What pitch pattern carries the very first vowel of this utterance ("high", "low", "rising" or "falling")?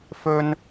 high